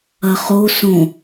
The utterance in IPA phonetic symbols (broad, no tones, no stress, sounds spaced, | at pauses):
ɐ χ o s õ